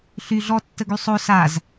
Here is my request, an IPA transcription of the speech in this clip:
ɬ y ɮ ɔ tː ə ɡ y sˤ o s a z

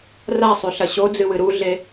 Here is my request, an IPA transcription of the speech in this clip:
r a sˤ ʉ ɬ ɐ ɕ o d͡z ɨ w ɨ ɾ u ɮ e

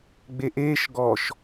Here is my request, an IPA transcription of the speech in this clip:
ɡ͡b e ʔ eː ʃ ɡ ɔ ʃ

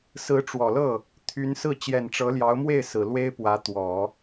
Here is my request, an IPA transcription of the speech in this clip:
s ɹ̩˧˥ ʈ͡ʂ w ɔ˨˩ l ɤ˥˩ | t̪ʰ y˧˥ n s ɹ̩˥˩ t͡ɕ j ɛ˨˩ n ʈ͡ʂ ɤ˧˥ l j ɑ˧˥ ʊ̯ m w e˥˩ ɪ̯ s ɹ̩˨˩ l w e˥ ɪ̯ p w ä˧˥ t̪ w ɔ˨˩˦

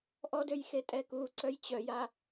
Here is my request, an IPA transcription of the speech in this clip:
ʔ ɔ d ø j x e tʼ ɛ k u ǀ œ j t͡ɕ œ j a

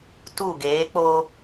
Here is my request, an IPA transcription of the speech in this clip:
t u˦˨ ɡ eː˨˦ k͡p o˦

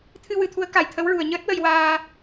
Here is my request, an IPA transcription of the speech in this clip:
t̪ʰ ɨ˧ w ɨ˨˩˨ t̪ʰ u˧˥ ə̯ k a˨˩ j t̪ʰ ə˧˥ w ɹ u˨˩ ə̯ ɲ əː˦˥ t̚ w ə˧ j w aː˧

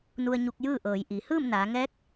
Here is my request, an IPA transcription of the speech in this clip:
n u˧ ə̯ ɲ u˧ k̚ j ɯː˥˨ ʔ ɤː˩˧ j ʔ i˩˧ h ɯː˥˨ m n aː˩˧ ŋ ɛː˧˥ k̚

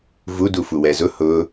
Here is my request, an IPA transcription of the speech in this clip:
v u d u f u w ɛ z ʊ h ʊ

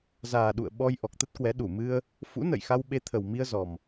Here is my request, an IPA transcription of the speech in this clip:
z aː˨˩ ɗ ṵ˧˨ ə̯ ɓ ɔ˧ j ʔ ɔ˨˩ k̚ t̪ ə˦˥ t̚ k w ɛ˨˦ ɗ u˧˩ m ɨ˧ ə̯ | f ṵ˧˥ n ə̰˧˨ j x a˧ w ɓ e˨˦ t̪ʰ ə˨˩ w m i˧ ə̯ z ɔ˨˩ m

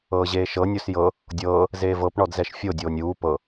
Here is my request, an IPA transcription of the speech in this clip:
ɤː ʑ eː ʃ ɤ nʲ o s j ɤ | dʲ ɤː | z eː v ɤ p ɳ ɔ d z ɛ ʃ fʲ o dʲ oː nʲ uː p ɤ

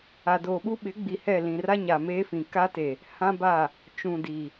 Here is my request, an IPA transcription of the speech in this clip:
a˨ d oː˨ ɓ u˦ ɓ ɪ˨˦ ɡ͡b i˨ h ɛ˦˨ l ĩ˨ r a˦ ɲ a˨ m eː˦ f ĩ˨ k a˦ t e˨ | h ã˦ b a˦˨ | t͡ʃ ũ˨ d i˨

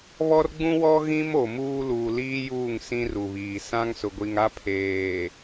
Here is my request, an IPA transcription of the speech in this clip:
β ɔ˦ r ɡ͡b ũ˦ w ɔ˦ ɣ ĩ˦ m o˨ m uː˦ l uː˨ l iː˦ j uː˦˨ ŋ s ĩ˦ r u˨ β iː˨ s ã˦ ŋ s ʊ˨ ɡʷ i˨ ŋ a˦ pʰ eː˨

